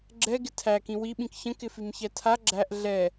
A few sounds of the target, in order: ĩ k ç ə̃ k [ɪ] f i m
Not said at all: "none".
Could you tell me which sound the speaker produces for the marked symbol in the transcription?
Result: ɪ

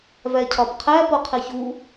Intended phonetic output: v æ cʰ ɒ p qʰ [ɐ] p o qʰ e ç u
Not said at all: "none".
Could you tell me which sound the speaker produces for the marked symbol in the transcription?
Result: æ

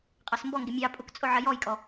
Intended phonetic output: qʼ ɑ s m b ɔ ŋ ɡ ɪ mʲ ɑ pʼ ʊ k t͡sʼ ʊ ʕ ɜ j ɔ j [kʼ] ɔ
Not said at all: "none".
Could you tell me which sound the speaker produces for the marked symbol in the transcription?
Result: kʼ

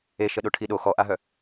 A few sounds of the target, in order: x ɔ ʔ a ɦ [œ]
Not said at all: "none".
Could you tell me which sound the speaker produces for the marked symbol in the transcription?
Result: œ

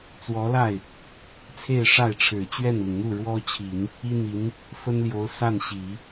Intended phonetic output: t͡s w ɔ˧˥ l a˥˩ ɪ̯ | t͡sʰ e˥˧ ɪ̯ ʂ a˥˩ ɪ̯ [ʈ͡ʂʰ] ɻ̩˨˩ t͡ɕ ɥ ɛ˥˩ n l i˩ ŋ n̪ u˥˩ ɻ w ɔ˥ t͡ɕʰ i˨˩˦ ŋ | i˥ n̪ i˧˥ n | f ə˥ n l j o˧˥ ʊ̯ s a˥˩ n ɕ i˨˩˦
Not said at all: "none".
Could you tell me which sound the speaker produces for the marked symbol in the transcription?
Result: ʈ͡ʂʰ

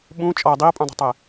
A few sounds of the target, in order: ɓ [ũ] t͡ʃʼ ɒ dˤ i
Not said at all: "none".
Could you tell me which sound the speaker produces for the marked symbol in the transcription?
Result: ũ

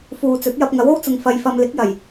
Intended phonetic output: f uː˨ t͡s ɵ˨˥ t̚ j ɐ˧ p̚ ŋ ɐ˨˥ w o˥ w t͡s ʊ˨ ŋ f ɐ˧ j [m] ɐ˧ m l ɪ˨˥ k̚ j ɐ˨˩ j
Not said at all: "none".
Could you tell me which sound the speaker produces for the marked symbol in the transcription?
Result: f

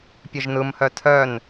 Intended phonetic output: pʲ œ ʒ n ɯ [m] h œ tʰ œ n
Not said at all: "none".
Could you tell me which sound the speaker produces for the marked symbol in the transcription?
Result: m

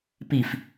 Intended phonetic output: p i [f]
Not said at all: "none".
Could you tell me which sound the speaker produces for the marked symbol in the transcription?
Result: f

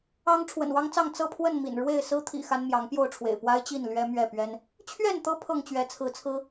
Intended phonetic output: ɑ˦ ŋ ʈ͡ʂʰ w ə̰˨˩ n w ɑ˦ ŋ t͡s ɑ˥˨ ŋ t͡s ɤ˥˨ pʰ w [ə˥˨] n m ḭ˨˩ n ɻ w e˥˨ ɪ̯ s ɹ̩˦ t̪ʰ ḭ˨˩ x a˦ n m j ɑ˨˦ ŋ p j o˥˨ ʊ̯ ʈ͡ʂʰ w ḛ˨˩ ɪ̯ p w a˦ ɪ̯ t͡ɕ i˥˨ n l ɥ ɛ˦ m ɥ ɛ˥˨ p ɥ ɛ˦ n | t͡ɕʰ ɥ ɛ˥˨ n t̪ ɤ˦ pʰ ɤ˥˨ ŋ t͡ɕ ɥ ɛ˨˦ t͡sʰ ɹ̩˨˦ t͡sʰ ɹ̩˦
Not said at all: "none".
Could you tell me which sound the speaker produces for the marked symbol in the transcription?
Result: ə˥˨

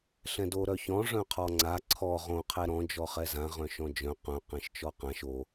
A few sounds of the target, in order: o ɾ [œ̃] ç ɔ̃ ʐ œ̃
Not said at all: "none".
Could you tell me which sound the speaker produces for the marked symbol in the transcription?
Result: œ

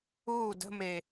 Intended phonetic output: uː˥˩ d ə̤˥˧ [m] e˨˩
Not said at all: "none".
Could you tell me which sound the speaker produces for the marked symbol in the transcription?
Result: m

